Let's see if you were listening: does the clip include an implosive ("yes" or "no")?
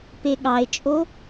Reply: yes